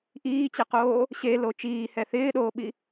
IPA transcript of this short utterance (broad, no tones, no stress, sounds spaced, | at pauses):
ʔ iː t͡ɕ ɛ q oː | ɕ e l o t͡ʃ iː h ɛ θ ɪː ɗ oː ɓ i